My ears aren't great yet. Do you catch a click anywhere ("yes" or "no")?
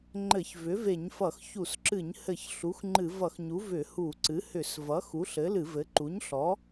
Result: yes